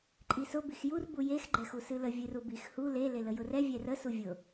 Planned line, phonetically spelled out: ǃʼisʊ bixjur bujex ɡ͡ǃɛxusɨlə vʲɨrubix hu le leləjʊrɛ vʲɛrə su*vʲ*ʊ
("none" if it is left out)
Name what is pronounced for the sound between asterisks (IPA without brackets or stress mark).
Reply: vʲ